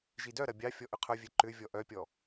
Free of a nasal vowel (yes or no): yes